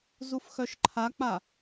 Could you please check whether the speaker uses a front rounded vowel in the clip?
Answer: yes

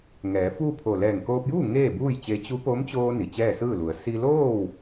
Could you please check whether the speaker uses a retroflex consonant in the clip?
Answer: no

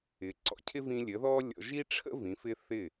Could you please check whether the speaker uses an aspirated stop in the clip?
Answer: yes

